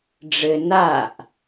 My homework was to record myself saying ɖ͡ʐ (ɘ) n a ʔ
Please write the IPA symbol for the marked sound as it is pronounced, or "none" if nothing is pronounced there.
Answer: ɘ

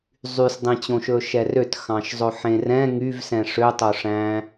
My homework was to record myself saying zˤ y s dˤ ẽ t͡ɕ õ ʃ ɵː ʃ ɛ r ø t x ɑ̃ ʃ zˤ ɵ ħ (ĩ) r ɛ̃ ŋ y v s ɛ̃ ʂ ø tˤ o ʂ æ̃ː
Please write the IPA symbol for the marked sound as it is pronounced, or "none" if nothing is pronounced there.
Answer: ẽ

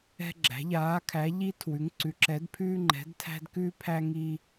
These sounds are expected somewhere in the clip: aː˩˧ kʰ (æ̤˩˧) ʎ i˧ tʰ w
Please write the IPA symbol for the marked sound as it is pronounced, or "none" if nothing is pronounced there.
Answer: æ˩˧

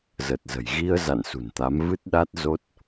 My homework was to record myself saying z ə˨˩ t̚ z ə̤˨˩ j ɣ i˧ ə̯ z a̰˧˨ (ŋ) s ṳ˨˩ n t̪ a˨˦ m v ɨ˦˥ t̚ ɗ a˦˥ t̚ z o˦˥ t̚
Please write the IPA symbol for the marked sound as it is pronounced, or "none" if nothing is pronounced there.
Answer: n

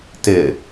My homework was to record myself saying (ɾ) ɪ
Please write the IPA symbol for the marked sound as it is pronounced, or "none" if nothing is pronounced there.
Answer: t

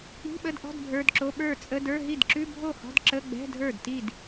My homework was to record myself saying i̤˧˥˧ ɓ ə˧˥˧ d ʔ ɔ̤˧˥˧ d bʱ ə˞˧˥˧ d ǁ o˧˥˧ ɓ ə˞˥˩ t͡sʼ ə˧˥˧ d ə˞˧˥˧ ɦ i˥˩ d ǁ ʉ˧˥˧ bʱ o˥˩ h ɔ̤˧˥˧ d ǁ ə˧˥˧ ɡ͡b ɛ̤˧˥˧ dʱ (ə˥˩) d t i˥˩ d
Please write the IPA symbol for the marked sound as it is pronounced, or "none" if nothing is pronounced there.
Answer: ə˞˥˩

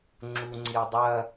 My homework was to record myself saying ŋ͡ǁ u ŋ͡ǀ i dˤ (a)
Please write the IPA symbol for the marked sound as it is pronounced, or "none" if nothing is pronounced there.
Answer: ɐ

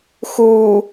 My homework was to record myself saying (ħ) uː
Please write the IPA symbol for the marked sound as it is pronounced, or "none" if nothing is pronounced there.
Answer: x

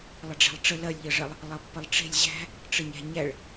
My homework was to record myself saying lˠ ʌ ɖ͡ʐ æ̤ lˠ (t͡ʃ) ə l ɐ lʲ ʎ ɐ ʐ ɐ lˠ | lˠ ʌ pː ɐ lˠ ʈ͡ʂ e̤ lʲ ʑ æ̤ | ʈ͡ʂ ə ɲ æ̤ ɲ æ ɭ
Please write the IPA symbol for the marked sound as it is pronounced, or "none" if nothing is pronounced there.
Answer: ʈ͡ʂ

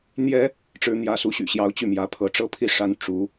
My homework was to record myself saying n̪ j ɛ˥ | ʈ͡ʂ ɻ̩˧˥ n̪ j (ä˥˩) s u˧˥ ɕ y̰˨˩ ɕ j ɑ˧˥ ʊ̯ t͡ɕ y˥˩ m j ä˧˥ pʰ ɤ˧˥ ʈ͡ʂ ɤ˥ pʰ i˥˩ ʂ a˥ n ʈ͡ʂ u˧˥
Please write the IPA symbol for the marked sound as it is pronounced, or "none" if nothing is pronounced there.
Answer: ä˧˥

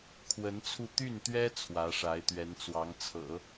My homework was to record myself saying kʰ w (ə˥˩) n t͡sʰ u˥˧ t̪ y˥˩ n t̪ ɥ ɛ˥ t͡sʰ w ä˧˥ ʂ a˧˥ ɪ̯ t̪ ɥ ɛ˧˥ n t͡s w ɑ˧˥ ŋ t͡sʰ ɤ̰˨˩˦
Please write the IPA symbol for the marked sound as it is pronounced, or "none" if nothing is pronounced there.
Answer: ə˧˥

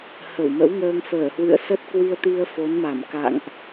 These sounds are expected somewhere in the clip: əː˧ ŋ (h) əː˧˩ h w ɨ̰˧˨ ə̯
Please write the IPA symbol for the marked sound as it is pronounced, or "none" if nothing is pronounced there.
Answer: f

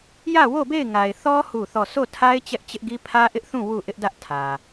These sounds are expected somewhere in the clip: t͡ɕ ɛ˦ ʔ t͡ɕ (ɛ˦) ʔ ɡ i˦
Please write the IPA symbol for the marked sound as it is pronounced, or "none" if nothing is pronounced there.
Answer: ɪ˦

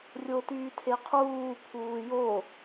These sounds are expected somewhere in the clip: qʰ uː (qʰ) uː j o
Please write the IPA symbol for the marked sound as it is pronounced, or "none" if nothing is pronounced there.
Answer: pʰ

